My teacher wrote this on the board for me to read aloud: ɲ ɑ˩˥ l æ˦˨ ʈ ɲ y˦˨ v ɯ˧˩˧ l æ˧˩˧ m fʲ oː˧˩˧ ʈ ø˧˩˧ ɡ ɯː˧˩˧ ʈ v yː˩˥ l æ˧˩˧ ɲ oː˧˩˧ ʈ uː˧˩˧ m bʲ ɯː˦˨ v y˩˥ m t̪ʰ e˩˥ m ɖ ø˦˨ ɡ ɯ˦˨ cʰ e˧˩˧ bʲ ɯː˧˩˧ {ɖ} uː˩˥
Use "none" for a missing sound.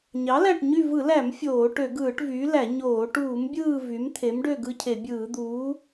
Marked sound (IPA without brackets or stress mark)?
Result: d̪